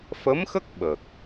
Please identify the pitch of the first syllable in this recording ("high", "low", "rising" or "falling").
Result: rising